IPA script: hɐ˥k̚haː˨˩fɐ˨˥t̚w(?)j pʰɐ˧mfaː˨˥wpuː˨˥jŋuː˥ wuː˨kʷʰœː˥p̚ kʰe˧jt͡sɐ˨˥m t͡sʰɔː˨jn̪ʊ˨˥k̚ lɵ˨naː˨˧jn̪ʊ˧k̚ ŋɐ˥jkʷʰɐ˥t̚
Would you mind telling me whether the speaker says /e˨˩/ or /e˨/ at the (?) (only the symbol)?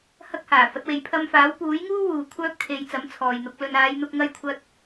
e˨